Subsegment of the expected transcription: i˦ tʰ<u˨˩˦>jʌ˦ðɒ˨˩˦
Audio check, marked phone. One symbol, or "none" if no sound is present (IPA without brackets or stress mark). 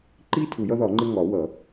u˨˩˦